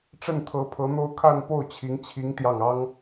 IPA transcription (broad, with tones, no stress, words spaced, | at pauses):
ʈ͡ʂə˥˩nt̪ʰɤ˧˥pʰɤ˧˥n̪o˥ʊ̯ kʰa˥˧npo˥˩ʊ̯t͡ɕʰi˧˥ŋ t͡ɕʰi˧˥ŋ t̪jɑ˥˩ŋ ɑ˥ŋ